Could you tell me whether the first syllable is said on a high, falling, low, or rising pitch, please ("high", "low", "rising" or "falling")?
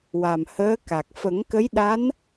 low